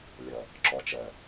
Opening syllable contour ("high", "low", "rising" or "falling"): low